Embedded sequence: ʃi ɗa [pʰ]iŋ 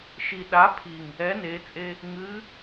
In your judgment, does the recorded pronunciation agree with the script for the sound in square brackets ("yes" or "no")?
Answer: yes